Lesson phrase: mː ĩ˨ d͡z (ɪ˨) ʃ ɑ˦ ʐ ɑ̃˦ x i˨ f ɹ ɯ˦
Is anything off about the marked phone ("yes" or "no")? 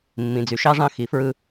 yes